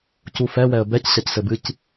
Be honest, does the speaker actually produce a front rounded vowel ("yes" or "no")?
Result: no